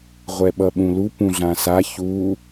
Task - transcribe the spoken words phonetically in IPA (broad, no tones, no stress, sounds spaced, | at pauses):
ʁʷ ɛ ɓ ʌ ɓ ũ l u p ũ ɮ ã s a ç u